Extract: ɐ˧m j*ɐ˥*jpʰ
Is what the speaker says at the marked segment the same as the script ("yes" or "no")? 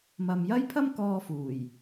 yes